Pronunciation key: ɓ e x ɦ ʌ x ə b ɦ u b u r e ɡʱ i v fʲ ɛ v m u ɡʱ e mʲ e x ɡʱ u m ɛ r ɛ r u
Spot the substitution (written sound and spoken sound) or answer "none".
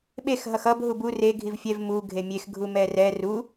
ə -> ʌ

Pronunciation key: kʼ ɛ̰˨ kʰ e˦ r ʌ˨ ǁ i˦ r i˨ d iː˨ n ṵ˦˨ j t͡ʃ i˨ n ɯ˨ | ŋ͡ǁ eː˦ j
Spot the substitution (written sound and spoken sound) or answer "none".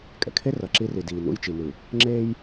none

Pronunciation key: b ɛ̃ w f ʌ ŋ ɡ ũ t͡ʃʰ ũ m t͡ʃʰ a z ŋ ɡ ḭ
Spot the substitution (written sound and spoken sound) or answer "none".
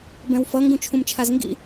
none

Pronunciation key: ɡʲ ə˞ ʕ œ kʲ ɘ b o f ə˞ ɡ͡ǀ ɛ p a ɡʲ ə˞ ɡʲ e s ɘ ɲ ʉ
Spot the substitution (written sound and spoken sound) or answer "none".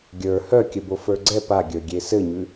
ʕ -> h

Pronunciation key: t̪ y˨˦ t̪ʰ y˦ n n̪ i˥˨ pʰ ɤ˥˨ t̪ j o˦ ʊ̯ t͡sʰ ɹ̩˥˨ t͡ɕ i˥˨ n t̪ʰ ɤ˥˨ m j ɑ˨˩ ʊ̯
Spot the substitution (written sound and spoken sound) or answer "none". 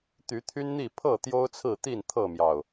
t͡ɕ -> t̪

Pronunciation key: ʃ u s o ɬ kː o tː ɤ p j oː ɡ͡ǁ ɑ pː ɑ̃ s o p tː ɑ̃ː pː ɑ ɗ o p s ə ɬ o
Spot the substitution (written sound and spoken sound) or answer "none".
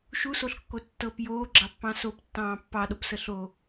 none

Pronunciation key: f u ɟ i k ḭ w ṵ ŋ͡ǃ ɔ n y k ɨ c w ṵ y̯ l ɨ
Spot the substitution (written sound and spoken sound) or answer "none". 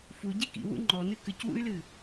y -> ɨ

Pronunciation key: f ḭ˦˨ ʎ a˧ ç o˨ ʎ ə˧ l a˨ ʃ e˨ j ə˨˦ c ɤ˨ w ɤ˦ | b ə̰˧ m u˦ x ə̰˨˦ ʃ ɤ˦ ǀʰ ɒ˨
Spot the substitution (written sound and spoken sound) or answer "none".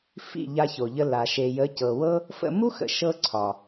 b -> f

